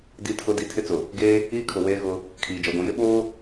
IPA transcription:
di˨tʰʊ˨di˨ tʰɪ˦t͡sʊ˨ | ɡeː˦ | iː˦kʰʊ˨ weː˦ɣʊ˦ | kʰiː˨d͡ʒɔ˨ɡʷĩ˨jɪ˦ ɓoː˦

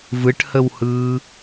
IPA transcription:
vɯʈhəwhɯː

